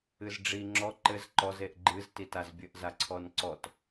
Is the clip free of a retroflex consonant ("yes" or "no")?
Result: no